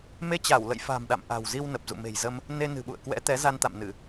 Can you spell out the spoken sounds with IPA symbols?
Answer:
m e˧ t͡ɕ a˧˩ w l ə̰˧˨ j f a̤˨˩ m ɗ a̰˧˨ m ʔ a̤˨˩ w z i˧ w n ə˨˩ p̚ z ṵ˧˨ m e̤˨˩ j z ə˧ m | n e˧ n ɨ̤˨˩ ɓ ṵ˧˨ ə̯ k w ɛ̰˧˥ t̪ ɛ˨˦ z a˧ n t̪ a̰˧˨ m n ɨ˧˩˨

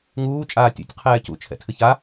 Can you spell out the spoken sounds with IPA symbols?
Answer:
ŋ uː t͡ʃʼ aː tʲ ṵ tʲ qʰ ɛː c ṵ t͡ʃʰ ɛ̰ tʰ ɨ ç a

